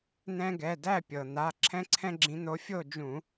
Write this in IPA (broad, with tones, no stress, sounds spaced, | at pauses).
n̪ ɛ̃˦ ɡ ɛ˩˧˩ d æ˥˨ pʲ ɤ˩ n̪ a˩˧˩ ǁʰ ɛ̃˦ ǀʰ ɛ̃˦ ɡ͡ǁ ĩ˨˦ n̪ o˨˦ fʲ o˥˨ d͡ʒ ũ˧˩˧